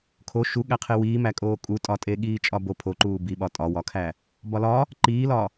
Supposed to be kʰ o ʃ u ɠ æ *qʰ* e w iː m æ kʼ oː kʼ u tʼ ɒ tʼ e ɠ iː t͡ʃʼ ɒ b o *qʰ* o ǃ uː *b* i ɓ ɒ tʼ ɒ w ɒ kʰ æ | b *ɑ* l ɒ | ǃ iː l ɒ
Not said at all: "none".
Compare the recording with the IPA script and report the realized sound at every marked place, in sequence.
qʰ, pʰ, b, ɒ

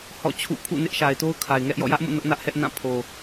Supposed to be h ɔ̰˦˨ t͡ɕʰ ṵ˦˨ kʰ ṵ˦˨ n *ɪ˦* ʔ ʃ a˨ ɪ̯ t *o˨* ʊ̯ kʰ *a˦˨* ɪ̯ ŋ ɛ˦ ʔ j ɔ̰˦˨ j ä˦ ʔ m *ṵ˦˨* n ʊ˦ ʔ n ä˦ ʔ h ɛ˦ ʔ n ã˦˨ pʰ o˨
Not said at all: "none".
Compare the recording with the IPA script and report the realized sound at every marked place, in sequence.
ɪ˦, o˦, a˨, ṵ˦˨

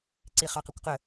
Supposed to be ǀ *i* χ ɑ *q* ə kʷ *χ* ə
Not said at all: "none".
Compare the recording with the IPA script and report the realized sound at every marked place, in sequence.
i, q, q

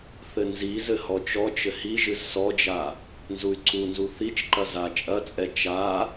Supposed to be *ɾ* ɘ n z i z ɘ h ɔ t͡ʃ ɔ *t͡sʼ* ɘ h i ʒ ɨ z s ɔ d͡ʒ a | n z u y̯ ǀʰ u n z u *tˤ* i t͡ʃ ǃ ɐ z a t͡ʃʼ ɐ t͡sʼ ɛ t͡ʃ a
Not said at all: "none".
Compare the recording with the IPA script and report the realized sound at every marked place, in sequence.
θ, t͡ʃ, θ

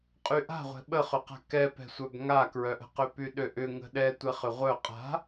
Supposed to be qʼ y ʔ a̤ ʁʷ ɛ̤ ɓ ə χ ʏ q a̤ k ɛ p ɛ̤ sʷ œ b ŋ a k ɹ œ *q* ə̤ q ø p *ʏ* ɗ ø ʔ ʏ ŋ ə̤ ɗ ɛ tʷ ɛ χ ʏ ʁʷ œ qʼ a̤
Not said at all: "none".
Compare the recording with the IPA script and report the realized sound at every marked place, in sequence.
ʔ, y

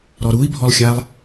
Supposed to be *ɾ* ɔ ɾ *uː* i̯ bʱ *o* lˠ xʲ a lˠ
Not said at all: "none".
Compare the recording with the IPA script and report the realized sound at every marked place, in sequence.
ɾ, u, ɔ

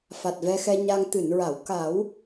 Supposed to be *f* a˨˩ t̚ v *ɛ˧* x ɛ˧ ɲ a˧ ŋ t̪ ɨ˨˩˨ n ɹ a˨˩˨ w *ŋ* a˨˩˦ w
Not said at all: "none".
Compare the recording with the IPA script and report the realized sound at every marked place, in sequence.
f, ɛ˧, k

